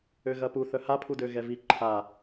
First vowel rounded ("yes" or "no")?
yes